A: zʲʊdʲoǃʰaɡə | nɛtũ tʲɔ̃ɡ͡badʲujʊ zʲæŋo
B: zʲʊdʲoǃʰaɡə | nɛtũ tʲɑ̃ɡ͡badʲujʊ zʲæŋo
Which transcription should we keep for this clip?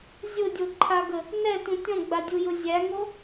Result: A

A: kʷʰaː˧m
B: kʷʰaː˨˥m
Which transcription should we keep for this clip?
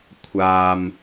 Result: A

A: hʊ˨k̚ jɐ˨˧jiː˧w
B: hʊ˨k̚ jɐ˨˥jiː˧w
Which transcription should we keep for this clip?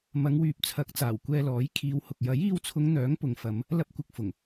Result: B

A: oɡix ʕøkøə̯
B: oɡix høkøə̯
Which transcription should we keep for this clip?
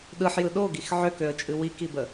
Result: A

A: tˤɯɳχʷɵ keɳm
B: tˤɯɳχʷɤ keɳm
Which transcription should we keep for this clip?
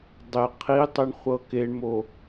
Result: B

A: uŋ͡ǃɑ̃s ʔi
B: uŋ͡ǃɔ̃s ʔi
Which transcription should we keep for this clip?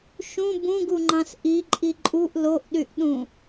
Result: A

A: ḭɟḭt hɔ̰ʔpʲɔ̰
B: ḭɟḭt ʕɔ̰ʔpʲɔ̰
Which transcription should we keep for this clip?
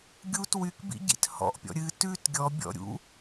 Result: A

